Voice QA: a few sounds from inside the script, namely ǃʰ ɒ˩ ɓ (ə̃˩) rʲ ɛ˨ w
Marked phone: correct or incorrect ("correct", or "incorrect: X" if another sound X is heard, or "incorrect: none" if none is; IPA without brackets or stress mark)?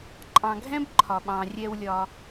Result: incorrect: ɑ̃˩